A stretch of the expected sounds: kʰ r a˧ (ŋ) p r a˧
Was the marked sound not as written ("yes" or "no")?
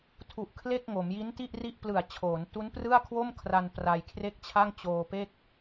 yes